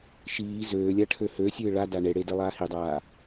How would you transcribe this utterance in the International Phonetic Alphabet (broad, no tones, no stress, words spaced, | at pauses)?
ʃiː zøːlʲa ʈʰøhøsʲɨː ɭada ɳeɽe delˠaːhidˤaː